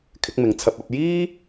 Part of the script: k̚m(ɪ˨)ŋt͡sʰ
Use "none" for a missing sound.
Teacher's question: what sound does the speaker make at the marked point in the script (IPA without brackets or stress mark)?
ɪ˨